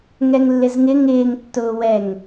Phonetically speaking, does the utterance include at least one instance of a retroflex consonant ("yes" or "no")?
no